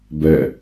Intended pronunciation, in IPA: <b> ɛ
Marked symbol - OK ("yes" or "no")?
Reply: yes